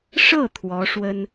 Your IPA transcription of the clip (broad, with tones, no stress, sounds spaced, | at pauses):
ʂ ɤ˥˩ t̪ʰ w ɔ˧˥ ʂ w ə˥ n